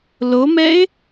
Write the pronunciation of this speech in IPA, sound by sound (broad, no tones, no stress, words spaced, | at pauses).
lomɛɪ̯